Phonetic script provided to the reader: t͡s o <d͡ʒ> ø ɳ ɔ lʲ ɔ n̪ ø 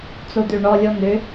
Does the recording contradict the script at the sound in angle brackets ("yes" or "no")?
yes